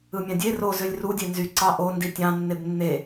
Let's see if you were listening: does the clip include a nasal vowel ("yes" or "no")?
yes